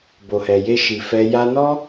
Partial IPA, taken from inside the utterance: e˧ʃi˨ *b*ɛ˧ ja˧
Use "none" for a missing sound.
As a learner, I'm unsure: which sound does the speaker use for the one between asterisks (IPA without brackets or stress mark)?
f